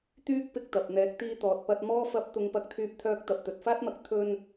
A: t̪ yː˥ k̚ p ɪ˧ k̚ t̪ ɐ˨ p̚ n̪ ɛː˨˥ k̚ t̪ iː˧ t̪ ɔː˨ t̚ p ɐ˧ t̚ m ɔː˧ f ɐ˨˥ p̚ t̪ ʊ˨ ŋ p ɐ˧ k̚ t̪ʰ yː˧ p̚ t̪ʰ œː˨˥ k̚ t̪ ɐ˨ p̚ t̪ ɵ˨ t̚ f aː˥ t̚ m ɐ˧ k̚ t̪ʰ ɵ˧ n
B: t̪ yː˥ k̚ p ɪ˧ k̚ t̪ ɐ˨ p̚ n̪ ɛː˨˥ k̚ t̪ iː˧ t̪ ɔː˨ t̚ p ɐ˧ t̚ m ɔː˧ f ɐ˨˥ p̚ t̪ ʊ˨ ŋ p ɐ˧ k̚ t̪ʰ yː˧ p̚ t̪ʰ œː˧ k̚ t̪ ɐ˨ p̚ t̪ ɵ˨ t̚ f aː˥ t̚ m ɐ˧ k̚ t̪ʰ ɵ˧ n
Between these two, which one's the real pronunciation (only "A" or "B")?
B